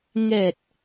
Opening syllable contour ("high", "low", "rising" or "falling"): low